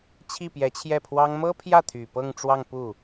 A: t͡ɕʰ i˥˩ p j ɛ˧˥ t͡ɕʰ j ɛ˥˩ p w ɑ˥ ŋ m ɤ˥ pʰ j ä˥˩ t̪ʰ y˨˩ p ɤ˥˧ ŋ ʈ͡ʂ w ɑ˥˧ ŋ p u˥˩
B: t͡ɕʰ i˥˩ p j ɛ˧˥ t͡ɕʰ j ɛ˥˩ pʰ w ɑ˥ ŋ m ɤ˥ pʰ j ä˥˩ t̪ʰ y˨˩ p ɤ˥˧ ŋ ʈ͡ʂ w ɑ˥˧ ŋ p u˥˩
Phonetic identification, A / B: B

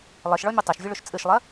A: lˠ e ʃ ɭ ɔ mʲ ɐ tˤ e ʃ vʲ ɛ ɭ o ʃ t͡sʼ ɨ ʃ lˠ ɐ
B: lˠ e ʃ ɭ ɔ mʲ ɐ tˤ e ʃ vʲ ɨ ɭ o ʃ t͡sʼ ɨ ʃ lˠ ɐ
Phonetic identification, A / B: B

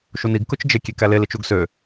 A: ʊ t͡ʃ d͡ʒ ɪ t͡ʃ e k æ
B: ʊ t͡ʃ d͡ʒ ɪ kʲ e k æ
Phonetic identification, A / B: B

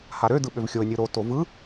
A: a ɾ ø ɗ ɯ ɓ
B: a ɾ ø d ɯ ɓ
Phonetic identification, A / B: B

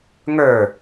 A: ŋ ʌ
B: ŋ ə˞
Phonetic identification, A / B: B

